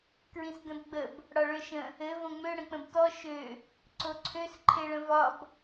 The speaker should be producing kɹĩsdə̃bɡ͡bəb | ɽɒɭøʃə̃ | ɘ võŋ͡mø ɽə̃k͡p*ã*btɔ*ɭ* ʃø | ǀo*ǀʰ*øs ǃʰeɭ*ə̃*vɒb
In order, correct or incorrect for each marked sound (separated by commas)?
incorrect, incorrect, correct, correct